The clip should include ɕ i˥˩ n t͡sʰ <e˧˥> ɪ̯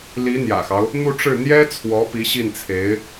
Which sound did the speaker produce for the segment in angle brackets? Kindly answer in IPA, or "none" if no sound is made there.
e˧˥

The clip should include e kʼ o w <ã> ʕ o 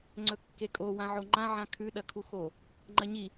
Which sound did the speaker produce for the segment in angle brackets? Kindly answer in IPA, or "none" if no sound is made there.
ã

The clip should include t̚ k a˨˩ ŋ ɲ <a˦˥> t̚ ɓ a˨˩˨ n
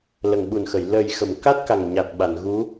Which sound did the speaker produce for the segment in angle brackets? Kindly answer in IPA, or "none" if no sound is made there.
a˨˩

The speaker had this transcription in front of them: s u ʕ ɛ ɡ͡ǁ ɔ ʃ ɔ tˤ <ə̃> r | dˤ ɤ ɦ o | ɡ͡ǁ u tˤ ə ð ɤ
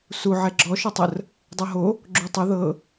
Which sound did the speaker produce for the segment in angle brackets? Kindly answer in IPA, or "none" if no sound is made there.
ə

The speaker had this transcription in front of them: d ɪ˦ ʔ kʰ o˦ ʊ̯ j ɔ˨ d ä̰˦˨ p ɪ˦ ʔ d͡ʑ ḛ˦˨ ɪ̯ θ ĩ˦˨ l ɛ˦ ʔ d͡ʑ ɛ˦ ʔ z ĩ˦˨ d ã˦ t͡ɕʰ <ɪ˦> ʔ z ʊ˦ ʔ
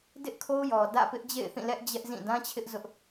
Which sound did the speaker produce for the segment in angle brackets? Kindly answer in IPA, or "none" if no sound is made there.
ɪ˦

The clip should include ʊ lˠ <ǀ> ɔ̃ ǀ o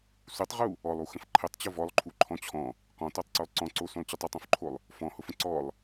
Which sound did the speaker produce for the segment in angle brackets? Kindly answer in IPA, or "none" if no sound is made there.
ǀ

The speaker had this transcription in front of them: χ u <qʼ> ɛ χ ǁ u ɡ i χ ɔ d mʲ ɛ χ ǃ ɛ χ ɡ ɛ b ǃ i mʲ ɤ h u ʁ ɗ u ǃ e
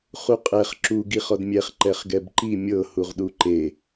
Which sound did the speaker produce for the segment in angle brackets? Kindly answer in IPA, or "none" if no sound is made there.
qʼ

